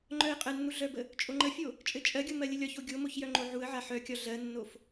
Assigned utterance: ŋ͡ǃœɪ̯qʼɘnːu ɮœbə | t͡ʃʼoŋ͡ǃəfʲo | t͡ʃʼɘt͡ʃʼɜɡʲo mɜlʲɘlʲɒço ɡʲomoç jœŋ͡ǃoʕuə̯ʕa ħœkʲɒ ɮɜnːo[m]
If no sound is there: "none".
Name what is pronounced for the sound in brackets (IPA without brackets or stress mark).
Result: f